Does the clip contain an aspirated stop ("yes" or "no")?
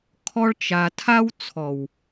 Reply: yes